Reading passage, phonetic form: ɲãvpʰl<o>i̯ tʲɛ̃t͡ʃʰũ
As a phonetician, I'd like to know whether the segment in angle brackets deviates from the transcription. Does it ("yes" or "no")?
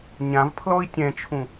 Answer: yes